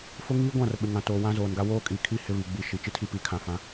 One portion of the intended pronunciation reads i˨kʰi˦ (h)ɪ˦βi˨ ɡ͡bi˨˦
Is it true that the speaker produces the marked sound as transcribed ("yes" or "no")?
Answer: yes